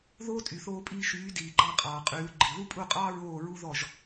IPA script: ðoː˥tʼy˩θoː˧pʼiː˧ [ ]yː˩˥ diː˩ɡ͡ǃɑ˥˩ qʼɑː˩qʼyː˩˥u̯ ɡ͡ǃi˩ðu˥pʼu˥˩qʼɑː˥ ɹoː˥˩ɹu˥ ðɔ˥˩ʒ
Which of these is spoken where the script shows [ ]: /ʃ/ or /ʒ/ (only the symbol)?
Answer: ʃ